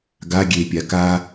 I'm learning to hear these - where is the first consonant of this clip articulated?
velum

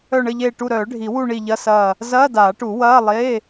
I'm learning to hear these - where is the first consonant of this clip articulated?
retroflex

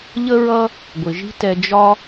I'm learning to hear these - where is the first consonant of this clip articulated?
palate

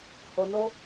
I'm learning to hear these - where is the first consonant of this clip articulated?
throat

